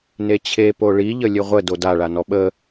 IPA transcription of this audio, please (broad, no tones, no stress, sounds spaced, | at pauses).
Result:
n e t͡ɕʰ e p o ɭ i ʎ ə lʲ ɨ ʁʷ ə d o d a ɭ a n ɔ ɓ ə